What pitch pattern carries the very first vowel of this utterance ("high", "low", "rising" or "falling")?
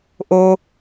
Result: high